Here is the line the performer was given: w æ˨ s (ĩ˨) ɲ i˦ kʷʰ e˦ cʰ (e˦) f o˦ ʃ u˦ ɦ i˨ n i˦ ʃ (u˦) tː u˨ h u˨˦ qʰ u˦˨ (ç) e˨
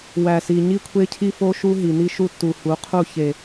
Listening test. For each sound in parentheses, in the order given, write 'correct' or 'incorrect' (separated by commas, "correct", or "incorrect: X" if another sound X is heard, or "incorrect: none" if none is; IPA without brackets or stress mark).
incorrect: i˨, incorrect: i˦, correct, correct